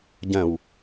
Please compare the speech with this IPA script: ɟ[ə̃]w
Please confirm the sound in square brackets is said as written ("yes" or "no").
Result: yes